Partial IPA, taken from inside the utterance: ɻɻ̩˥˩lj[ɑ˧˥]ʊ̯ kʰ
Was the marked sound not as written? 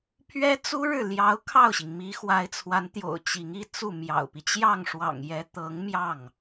no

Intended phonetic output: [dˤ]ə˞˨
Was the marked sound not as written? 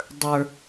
no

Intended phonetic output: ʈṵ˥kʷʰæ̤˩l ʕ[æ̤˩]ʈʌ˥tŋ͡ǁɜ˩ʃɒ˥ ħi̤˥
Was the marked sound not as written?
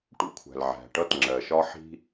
no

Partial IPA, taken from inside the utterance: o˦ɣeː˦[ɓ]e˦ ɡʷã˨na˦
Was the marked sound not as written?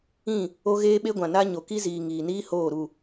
no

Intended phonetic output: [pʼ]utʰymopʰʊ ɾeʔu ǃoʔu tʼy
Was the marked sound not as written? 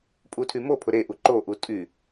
no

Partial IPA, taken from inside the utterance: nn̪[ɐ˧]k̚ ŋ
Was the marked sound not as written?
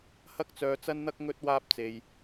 yes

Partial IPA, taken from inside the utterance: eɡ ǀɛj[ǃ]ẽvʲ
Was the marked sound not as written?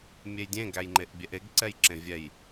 yes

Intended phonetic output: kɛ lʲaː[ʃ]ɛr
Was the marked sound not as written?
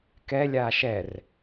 no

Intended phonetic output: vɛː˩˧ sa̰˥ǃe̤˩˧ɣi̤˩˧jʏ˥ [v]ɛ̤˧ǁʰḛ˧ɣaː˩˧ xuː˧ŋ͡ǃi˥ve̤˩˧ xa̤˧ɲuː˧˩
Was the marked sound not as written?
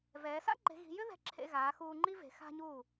yes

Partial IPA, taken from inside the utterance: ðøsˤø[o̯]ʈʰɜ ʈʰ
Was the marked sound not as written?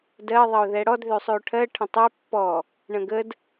no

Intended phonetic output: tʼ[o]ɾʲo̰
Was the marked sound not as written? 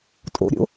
yes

